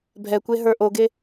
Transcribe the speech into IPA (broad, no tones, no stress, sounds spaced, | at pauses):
bʱ ɛ kʷ e ɦ ə˞ ʔ o ɡ e